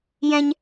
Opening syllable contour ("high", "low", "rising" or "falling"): high